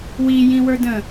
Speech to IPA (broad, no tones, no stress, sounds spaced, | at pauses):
w i j ĩ w ə˞ d ə̃